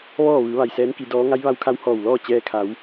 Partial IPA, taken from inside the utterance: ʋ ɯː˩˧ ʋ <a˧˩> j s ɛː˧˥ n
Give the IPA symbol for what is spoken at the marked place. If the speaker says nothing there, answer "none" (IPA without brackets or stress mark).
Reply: a˩